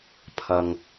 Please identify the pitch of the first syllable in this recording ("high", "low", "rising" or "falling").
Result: low